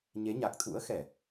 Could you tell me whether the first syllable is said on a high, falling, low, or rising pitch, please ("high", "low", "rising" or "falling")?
rising